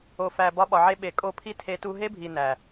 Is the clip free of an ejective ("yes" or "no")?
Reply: no